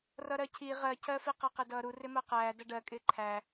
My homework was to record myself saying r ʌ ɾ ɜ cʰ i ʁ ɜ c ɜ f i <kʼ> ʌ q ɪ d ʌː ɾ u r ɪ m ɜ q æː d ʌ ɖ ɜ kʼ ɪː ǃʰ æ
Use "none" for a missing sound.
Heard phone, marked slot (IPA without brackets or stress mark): q